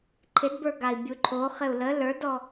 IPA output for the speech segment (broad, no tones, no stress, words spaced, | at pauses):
ǃʰɪdbə˞ɡai̯ bʲuǃʰo χɪu̯lə lə˞dɔ